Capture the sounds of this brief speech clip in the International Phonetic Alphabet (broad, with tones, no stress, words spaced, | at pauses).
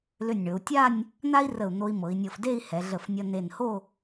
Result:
lʏ˧˩nʲɳɵ˩˧u̯tʲa˥˧nʲ | n̪a˥i̯rə˧˩u̯ n̪o˧i̯mɤ˩˧i̯nʲɤ˧˩f de˥˧i̯ hɛ˩˧ɮə˧˩fnʲʌ˧ ne˧˩nho˥˧